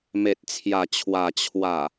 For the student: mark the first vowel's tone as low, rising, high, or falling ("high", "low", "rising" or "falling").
low